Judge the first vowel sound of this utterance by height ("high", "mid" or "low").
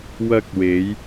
low